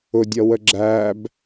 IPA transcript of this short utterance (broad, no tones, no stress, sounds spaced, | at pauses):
ʊ dʲ ʌ w ə ɡ͡ǁ æ b